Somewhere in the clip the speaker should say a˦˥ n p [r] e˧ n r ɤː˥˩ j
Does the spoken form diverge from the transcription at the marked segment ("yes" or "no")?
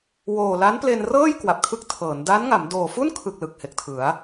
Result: yes